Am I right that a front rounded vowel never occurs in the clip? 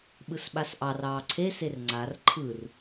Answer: yes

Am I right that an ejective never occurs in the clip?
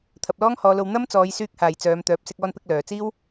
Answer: yes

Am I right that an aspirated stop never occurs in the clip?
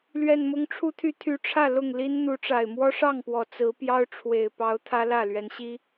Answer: no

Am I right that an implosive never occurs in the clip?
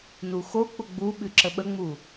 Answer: no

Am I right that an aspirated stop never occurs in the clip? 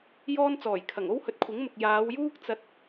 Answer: no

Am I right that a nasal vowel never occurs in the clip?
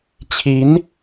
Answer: yes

